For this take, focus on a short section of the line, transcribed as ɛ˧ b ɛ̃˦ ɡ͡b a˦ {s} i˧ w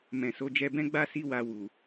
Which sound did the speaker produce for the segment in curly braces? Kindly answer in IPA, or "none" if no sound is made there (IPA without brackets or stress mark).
s